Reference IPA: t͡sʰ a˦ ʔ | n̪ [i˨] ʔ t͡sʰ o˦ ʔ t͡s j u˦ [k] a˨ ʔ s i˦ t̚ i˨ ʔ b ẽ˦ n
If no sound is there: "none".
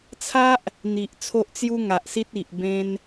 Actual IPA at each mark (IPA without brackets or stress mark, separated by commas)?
i˨, ŋ